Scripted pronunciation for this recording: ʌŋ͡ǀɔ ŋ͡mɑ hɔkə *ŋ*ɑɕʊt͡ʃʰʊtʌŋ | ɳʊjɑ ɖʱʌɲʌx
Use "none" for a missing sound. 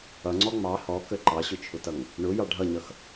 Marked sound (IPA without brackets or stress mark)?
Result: ǃ